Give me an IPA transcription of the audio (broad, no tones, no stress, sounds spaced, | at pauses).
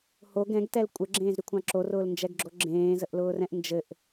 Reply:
h o ɡ ɛ̃ ɡ t ɛ l kʷʼ ɘ ɡ͡ǁ ẽː z ɾ y kʷʰ ɑ̃ ǁ o r ʊː l n d͡ʒ ɛ ɡ ɡ͡ǁ o ɡ͡ǁ ẽː z ə ʔ l ʊː r ɛ̃ ʔ n d͡ʒ ɘ ʔ